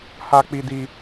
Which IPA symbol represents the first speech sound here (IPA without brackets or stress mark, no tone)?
h